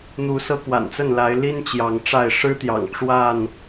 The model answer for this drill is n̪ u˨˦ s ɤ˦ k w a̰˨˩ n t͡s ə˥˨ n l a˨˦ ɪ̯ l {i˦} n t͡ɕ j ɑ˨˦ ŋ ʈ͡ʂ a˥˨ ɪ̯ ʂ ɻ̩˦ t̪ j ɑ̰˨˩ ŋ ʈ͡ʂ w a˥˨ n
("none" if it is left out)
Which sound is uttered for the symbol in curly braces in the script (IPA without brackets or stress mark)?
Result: i˦